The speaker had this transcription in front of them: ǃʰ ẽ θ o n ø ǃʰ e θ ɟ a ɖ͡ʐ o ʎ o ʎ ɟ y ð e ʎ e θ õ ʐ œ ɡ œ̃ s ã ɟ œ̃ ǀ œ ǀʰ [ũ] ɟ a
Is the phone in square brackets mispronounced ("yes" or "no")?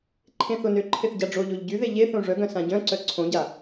yes